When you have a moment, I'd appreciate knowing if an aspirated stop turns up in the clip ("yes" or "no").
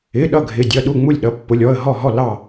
no